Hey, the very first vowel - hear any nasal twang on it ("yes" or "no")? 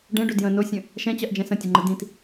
yes